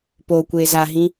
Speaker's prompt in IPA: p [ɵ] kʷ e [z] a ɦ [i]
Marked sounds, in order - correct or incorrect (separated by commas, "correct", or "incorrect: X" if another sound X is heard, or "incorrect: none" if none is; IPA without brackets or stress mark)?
incorrect: o, correct, incorrect: ĩ